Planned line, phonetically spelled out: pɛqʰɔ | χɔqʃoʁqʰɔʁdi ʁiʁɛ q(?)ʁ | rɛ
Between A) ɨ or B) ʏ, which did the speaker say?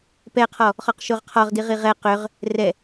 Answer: B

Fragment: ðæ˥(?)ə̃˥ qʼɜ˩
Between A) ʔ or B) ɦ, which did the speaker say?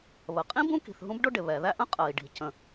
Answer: A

